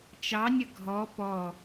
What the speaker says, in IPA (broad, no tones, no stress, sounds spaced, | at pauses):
t͡ʃ ɑ nʲ ə ɡʱ ɔ p ɔ